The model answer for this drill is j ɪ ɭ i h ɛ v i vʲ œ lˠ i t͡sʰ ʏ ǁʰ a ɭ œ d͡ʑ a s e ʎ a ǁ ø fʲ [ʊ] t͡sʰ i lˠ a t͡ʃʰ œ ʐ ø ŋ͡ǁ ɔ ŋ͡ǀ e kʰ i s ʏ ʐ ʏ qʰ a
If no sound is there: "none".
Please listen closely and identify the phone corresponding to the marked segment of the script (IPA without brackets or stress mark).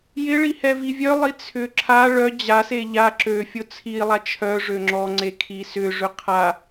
ʊ